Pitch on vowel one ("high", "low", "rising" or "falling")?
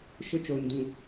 high